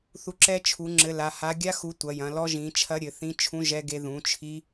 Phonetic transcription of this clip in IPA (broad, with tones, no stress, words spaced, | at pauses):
θu˨˦ǁɛ˦˥ t͡ʃʰu˨˦ŋ͡ǁɘ˨˦ la˨˦ ha˨˦ɡʲa˦˥xu˨˦ tʷɐ˨˦jɐ̃˨˦ lɔ˦˥ʒĩ˨˦t͡ʃʰɐ˦˥ ɾʲɘ˨˦θĩ˦˥ t͡ʃʰũ˦˥ʒɛ˦˥ ɡe˦˥ ðũ˨˦t͡ʃʰi˦˥